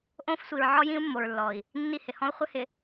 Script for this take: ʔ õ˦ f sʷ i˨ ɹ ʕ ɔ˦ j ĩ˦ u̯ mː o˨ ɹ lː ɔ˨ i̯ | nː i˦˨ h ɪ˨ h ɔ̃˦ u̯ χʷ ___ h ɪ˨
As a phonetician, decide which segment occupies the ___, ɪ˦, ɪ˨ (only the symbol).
ɪ˦